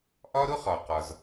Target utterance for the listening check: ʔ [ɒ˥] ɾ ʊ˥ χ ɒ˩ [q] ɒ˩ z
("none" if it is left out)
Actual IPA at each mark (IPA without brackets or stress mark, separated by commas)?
ɒ˥, q